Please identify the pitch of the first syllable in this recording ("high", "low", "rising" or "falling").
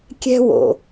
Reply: high